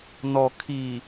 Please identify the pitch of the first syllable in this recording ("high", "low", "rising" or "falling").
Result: low